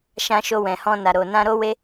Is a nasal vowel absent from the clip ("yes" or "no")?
no